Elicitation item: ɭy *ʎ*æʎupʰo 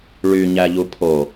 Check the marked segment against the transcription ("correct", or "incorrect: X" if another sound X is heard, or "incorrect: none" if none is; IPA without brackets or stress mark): incorrect: ɲ